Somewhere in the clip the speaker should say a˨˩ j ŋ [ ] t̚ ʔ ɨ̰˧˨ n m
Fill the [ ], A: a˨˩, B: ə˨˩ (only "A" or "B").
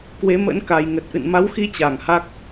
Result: B